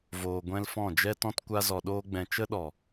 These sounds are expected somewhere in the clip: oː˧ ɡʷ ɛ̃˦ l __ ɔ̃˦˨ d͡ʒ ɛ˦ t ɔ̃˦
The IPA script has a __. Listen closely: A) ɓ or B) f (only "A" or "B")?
B